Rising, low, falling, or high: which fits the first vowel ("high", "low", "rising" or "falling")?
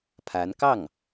rising